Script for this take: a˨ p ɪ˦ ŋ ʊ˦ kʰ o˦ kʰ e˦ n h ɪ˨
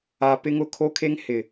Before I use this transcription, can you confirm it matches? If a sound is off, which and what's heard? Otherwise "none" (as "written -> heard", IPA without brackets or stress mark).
n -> ŋ